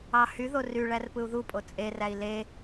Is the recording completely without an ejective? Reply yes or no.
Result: no